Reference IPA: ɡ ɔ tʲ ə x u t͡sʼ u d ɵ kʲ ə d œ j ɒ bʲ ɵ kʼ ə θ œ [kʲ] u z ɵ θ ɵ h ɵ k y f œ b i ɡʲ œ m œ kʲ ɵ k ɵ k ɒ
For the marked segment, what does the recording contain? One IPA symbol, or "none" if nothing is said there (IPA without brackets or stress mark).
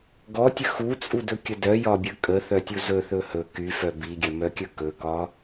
tʲ